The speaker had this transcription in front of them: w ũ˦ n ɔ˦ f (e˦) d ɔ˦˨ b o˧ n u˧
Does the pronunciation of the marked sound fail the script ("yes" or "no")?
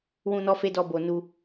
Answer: no